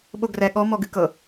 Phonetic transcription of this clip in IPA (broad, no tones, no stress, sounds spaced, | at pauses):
ɓ o ɡ r ɛ ɠ ɔ m ɔ ɡ ɨ k ɤ